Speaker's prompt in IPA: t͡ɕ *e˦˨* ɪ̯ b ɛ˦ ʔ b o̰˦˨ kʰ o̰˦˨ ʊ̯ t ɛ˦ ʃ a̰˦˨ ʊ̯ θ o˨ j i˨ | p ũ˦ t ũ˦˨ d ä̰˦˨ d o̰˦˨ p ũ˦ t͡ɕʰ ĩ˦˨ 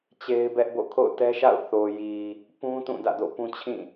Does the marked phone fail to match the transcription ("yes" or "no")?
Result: yes